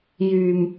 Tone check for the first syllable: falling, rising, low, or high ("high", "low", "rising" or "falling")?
low